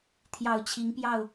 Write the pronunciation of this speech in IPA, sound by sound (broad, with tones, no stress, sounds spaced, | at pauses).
t̪ʰ j ɑ˨˩ ʊ̯ t͡ɕʰ i˨˦ ŋ p j ɑ˥˨ ʊ̯